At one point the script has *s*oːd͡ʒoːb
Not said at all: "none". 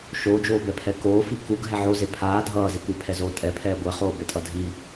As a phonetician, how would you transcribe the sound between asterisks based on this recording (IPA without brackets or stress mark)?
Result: ʃ